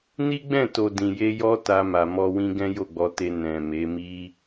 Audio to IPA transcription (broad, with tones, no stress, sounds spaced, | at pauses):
n i˦ ɡ͡b ɛ̃˦˨ t o˨ d ĩ˨ j e˧ j ɔ˦ t a˧ m a˨ m ɔ˧ w ĩ˦ ɡ ɛ̃˦ j o˦˨ ɡ͡b ɔ˧ t e˧ n ɛ̃˨ m e˨˦ m i˦